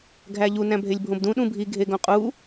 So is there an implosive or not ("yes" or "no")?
yes